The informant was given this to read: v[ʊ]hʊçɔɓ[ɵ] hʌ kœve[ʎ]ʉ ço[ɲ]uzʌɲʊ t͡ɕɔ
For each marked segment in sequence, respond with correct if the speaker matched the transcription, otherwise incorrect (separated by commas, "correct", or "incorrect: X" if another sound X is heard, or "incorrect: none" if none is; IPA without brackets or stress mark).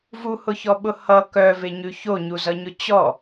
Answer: incorrect: u, incorrect: ʊ, incorrect: ɲ, correct